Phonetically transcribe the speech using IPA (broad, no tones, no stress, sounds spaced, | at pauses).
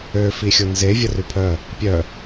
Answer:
ø f i xʲ o n z e vʲ ə r y pʰ œ | pʲ œ